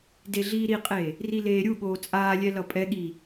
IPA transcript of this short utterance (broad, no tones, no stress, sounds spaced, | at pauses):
d e ɮ iː ɾ i qʼ eː | r i l eː ɾʲ u ɠ oː t͡sʼ aː lʲ ɛ l ʌ pʼ ɛ ɠ iː